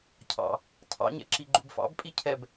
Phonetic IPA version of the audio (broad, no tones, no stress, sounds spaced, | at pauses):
cʰ ɑ̰ | tʰ ɑ̰ ɲ ɛ̰ ǁ i ɡ͡ǃ u b f ɑ̰ b pʼ i cʰ ɛ b